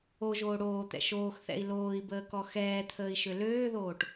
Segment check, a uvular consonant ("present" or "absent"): absent